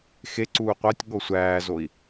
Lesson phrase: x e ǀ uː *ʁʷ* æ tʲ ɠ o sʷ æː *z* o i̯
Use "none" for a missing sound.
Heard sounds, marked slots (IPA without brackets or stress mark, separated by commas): qʷ, z